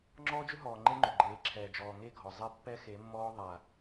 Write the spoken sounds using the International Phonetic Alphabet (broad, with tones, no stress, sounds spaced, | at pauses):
ŋ͡ǁ ɔː˦ d͡ʒ ʏ˦ ɦ ɔː˨ ŋ͡ǃ e˦ ŋ͡ǃ ʏ˨ ɡ͡ǃ eː˨˦ ǁʰ ɛː˨ d͡ʒ ɔː˨ ŋ e˦˨ ɡʱ ɔ˨ zˤ ɛ˦ pː ɛ˦ x e˨˦ mː ɔː˦ ðˤ a˨